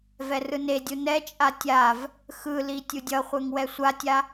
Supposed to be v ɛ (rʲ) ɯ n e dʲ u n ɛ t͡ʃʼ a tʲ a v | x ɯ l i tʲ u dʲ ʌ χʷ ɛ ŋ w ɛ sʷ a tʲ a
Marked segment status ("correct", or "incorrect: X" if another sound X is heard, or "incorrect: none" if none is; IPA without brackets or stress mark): incorrect: r